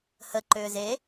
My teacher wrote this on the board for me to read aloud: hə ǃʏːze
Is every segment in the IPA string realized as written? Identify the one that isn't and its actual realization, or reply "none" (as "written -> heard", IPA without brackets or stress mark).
none